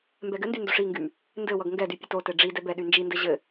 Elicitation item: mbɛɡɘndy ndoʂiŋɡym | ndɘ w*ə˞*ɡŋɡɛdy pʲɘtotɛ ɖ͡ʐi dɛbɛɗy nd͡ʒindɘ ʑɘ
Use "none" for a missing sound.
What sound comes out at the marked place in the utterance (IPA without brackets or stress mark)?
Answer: ʌ